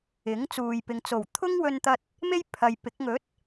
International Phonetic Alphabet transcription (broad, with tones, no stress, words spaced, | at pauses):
ɪ˨˥ŋt͡suː˨jpɪ˨ŋ t͡so˨˩wt̪ʰʊ˥ŋwɵ˧nt̪ɐ˧t̚ | me˥j pʰɐ˨jpɪ˨˥k̚ ŋɵ˨˥t̚